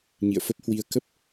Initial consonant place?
palatal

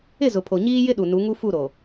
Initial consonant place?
alveolar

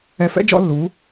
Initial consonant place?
labial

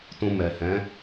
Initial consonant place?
alveolar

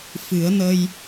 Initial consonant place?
labial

